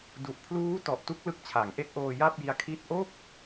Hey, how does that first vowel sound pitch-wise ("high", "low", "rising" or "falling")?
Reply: low